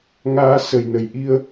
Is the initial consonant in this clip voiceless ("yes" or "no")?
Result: no